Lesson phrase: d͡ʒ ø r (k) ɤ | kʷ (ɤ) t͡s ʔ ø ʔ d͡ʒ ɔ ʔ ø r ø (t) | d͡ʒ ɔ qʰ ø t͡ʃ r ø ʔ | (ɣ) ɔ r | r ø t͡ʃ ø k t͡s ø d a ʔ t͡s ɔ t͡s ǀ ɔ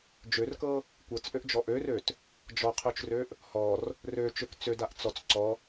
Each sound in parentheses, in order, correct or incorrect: correct, correct, correct, incorrect: h

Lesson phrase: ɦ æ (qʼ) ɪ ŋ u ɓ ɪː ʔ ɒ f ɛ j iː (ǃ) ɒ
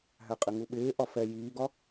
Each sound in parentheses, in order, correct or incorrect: correct, incorrect: ɡ

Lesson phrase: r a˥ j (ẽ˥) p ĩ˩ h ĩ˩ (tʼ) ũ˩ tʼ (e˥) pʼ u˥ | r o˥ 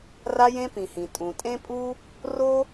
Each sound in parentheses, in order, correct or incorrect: correct, correct, incorrect: ẽ˥

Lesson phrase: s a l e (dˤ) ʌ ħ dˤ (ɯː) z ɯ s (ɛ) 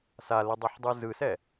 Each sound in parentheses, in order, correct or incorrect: correct, incorrect: ɯ, correct

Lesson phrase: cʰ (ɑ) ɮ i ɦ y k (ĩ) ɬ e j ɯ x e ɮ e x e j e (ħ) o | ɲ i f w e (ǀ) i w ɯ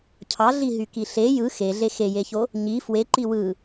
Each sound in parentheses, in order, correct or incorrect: correct, incorrect: i, incorrect: ç, incorrect: ǃ

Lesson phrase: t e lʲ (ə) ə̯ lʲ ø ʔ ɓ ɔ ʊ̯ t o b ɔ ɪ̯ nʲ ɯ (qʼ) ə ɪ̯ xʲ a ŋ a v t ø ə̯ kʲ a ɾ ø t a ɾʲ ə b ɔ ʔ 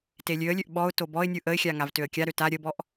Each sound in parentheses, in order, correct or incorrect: incorrect: ø, incorrect: ʔ

